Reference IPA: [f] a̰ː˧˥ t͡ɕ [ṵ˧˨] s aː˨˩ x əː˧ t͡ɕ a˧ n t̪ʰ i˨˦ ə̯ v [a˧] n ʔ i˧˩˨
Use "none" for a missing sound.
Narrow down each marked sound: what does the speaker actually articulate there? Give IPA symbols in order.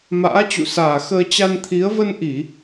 m, ṵ˧˨, ə˧

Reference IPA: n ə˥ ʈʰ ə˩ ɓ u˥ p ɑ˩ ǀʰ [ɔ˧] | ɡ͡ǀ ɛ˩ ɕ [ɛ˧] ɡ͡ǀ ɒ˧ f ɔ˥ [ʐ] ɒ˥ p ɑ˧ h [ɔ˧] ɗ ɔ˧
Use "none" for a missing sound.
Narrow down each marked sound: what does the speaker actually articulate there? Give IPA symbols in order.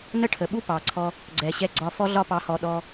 ɔ˧, ɛ˧, ɮ, ɔ˧

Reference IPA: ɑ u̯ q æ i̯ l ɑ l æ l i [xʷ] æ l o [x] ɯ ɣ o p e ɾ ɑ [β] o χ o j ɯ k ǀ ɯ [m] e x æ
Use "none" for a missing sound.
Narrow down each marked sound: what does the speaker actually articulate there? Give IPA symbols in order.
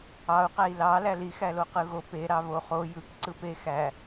x, q, β, p

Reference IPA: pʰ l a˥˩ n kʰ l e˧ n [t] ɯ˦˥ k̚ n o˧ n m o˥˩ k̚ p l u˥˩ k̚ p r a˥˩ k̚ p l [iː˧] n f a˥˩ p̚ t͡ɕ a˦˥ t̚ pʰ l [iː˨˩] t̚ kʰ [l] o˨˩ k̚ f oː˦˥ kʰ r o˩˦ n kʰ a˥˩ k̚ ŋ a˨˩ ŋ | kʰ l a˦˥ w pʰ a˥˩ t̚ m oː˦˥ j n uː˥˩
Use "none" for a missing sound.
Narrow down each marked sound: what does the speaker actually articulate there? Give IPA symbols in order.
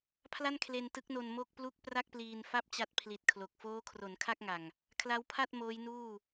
t, iː˧, i˨˩, l

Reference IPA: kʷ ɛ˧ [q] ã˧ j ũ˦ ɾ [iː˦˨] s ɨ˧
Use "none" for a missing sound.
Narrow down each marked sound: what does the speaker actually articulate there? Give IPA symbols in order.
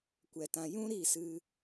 t, iː˦˨

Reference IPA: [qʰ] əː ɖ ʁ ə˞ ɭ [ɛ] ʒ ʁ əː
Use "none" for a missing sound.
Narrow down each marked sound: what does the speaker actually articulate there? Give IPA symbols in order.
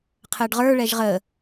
qʰ, ɛ

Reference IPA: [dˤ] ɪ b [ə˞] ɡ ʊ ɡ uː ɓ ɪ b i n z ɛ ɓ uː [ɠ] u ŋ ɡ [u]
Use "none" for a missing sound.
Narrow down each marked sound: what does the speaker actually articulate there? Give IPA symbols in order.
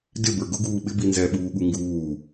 d, ə˞, ɠ, uː

